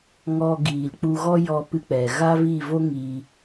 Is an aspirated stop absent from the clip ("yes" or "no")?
yes